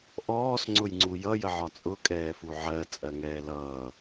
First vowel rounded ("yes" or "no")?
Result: yes